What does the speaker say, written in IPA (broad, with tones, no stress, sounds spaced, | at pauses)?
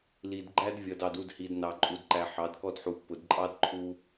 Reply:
l i˨ d ɡ͡ǃ æ˦ d vʲ ʌ˨ d ɑ˨ d u˦˨ d h i˨ d n ɑ˨ ǃʼ u˨ d ǃ æ˨ ħ ɑ˨˦ d k ɔ˦ d ħ u˨ pː ʊ˨ d ǃʼ ɑ˦ d ǃʰ u˦